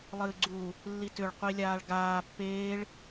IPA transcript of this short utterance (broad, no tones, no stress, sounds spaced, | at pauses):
lˠ ɨː ɡ͡ǀ u | lː i t ʏ ɭ qʷ i lʲ aː ɭ ɡ aː pː eː ɭ